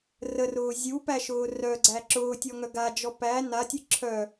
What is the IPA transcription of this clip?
r ə r ʊː zʲ u p æ ʃ ʊː r œ ɡ͡ǀ æ ǁ ʊː tʲ ɔ ŋ œ ɡ a d͡ʒ ɔ p æ n a tʲ ɨ ǁʰ œ

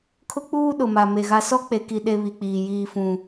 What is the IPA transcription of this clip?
kʰ ʊ˦ k͡p uː˦ ɗ ʊ˨ m a˨ m e˨ ɣ a˦ s ɔ˦ k͡p e˨ k i˨ ɗ e˦ β i˨ k͡p iː˨ j iː˨ f ũ˨

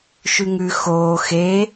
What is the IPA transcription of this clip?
ʃ ʉ ŋ ʉ x oː x e

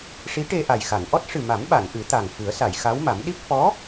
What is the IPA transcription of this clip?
ʂ i˧˥ ʈ e˧ ʔ a˨˩ j x a˨˩˨ n ʔ ɔ˦˥ t̚ ʂ ɨ˨˩ m a˨˩˦ m ɓ a˨˩˨ n ʔ ɨ˨˩˦ t̪ a˨˩ ŋ f ɨ˨˩˦ ə̯ s a˨˩˨ j x a˧˥ w m a˨˩˦ m ɗ i˦˥ p̚ f ɔ˧˥

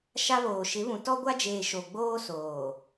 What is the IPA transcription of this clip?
ʃ a˦ β oː˨ ʃ ɪ˨˦ β ũ˨ t ɔ˦ ɡʷ a˦ d͡ʒ eː˨ ʃ o˨ ɡ͡b oː˦ s oː˨

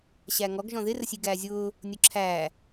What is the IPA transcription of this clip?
ɕ æ ŋ ɔ ɡ ʒ ɔ̃ ð ɪ r ə sʲ i ɡ æː zʲ ʊː | nʲ ʊ ǁʰ æː

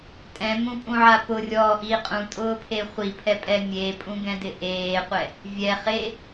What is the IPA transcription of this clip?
tʼ ɛ̃ m ũ pʼ ũ ʕ a p ʊ rʲ ɔː ʔ i qʼ ũ tʼ ʊː pʰ e χʷ i pʰ ɛ pʼ ɛ mʲ e pʼ ũ ɡ ɛ̃ d ɪ ʔ eː qʷ ɛ | vʲ ɛ χ e

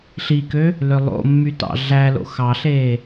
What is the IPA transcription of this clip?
ɬ i k ø | l ø lˠ o̰ mː y t ɑ̰ ɮ æ l o̰ x ɑ ɬ eː

